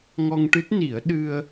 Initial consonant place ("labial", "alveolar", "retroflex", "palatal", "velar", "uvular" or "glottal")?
velar